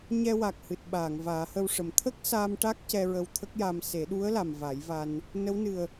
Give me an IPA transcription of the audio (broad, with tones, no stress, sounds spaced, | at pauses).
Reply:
ɲ ɛ˧ w a˨˩ k̚ h ɨ˨˩ t̚ ɓ aː˨˩˨ ŋ v aː˨˩˦ h ə˧ w ʂ ə˨˩ m t̪ʰ ə˦˥ k̚ s a˧ m ʈ a˦˥ k̚ c ɛ˧ ɹ ə˧ w t̪ʰ ə˦˥ k̚ j a˧ m s e˨˩˦ ɗ u˧˥ ə̯ l a˨˩ m v a˨˩˦ j v a˧ n | n ə˧˥ w n ɨ˨˩ ə̯